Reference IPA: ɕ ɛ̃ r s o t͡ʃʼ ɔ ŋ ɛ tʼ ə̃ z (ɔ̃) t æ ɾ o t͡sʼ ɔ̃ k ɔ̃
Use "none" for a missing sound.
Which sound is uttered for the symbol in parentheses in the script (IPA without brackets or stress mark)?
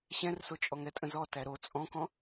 ɔ